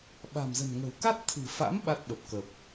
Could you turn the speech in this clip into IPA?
ɓ a̤˨˩ m z ə̤˨˩ n ŋ ə̤˨˩ w k a˦˥ t̚ t̪ʰ ɨ̤˨˩ f a̰˧˥ m ɓ a˦˥ t̚ ɓ ə˨˩ p̚ k ə˨˩ p̚

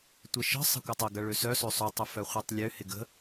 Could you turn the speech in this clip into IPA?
tʷ e ʃ ə̤ sˤ ə̤ kʷ ɐ tˤ ɪ ɡ ɐ ɭ ø s œ s ø sˤ ʊ tˤ ʊ f œ χʷ ɛ tˤ lʲ ø h ɪ ɡ ə̤

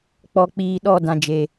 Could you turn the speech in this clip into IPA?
k͡p ɔ˨ k͡p iː˨ ɗ ɔ˦˨ d ã˨ d͡ʒ e˨

